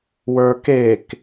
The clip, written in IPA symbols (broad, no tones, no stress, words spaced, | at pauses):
wə˞kek